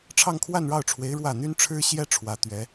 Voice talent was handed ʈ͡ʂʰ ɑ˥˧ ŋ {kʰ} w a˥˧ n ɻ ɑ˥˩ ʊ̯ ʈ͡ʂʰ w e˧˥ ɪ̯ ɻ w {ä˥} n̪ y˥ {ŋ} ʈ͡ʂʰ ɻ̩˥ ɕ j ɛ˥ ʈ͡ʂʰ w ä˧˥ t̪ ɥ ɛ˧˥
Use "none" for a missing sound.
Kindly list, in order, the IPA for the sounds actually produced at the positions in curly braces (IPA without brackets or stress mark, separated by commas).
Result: kʰ, ä˥˩, n